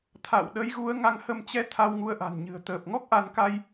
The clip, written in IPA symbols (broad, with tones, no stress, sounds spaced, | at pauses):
t̪ʰ a̰˧˨ w ɗ ə˨˦ j ɣ u˨˦ ə̯ ŋ a˨˦ ŋ h ə˧ m t͡ɕ ɛ˧ t̪ʰ a˧ w ŋ u˨˦ ə̯ ʔ a̤˨˩ n ɲ ɨ̤˨˩ ə̯ t̪ əː˨˩ p̚ ŋ ɔ˦˥ k̚ ʔ a˧ n k a˧ j